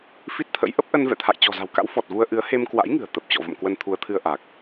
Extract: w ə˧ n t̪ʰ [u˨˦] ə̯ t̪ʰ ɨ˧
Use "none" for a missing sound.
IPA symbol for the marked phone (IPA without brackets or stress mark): u˨˦